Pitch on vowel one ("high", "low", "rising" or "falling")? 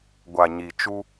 low